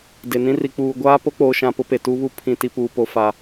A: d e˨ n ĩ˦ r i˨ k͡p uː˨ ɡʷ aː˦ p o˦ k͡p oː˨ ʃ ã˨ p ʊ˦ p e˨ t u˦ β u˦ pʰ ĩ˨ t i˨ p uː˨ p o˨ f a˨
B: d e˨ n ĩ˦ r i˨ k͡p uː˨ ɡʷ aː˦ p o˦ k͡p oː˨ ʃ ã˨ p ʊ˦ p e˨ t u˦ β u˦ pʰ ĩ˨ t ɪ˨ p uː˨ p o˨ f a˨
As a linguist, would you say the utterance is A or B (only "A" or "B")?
A